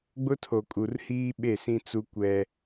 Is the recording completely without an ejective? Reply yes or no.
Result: no